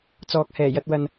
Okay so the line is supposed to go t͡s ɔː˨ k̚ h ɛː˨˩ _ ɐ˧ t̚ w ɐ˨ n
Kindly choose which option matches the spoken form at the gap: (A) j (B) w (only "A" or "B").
A